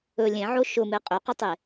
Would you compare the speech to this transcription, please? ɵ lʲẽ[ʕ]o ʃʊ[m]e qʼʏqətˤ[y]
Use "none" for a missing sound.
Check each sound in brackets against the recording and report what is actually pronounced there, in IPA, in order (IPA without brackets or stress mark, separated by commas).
ʕ, m, e